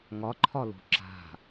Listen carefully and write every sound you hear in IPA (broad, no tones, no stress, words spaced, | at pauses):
ŋɒǃʰɒlo̤ ǁa̤